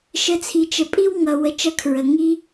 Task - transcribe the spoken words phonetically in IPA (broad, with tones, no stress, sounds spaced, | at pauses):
ʃ ə˧ t͡sʰ i˨ t͡ʃ ə˨ pʼ i˦ w ŋ ʌ˧ w ə˧ t͡ʃ ʌ˦ kʰ ɹ ə˨ ŋ i˦